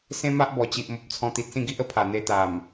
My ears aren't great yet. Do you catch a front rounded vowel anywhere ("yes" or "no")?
no